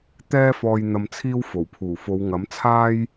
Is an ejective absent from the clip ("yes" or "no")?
yes